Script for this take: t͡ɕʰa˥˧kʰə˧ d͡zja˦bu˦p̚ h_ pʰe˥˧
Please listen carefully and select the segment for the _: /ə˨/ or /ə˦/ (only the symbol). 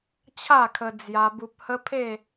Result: ə˦